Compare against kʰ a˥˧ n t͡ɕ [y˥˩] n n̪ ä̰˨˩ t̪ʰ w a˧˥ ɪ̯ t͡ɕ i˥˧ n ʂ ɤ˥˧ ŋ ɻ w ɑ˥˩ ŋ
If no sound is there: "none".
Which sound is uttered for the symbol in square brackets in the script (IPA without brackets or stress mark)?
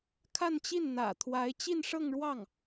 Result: i˥˩